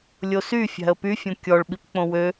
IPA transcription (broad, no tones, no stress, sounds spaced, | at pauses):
lʲ o s y fʲ æ̤ ə̯ p y fʲ õ kʲ ɔ ɭ ɓ i p k͡p õ w ø